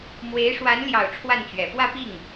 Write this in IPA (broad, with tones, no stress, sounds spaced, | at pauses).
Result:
m w e˧˥ ɪ̯ ʂ w a˧˥ n l j ɑ˨˩ ʊ̯ ʈ͡ʂʰ w a˥˩ n t͡ɕ ɥ ɛ˨˩ f w ä˥˧ p i˥˩ ŋ